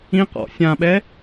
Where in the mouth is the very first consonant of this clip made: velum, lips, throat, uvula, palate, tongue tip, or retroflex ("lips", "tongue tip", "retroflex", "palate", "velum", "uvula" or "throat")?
uvula